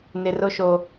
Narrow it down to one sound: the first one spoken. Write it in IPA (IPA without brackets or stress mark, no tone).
n